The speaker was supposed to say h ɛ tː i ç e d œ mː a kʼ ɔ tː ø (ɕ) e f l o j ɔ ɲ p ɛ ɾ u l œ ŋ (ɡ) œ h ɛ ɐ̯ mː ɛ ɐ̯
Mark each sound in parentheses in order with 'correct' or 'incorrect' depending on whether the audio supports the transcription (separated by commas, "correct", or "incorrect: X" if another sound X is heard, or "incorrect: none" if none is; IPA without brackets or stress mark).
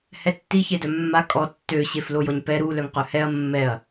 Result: correct, incorrect: q